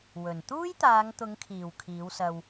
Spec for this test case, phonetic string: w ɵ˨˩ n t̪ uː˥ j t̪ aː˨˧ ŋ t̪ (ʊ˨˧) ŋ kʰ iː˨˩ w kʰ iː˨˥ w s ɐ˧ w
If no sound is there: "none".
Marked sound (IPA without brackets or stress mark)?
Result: ʊ˨˧